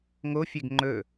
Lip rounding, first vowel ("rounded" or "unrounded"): rounded